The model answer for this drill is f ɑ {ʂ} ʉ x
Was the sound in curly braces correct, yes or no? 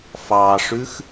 yes